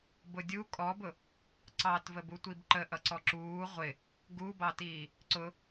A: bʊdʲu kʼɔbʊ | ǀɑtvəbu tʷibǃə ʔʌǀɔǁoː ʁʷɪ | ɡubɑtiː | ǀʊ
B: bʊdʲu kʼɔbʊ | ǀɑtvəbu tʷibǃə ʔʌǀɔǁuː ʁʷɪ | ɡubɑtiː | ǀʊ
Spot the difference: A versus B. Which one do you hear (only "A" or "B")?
B